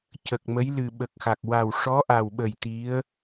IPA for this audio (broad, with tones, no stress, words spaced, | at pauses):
cə˨˩k̚mə˧˥j lɨ˨˩ɓə˨˩k̚xa˨˩k̚ wa˨˩wʂɔ˧˥ʔa˨˩wɓə˨˩j t̪i˧˥ə̯